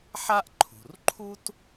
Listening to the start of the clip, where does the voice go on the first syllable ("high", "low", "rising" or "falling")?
high